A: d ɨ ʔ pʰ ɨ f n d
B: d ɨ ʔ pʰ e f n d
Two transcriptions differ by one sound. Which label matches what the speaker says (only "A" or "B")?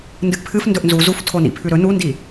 A